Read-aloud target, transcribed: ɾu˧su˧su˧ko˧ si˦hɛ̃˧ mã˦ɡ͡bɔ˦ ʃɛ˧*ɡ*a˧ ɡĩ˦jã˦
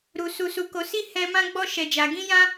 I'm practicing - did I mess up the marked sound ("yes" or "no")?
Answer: yes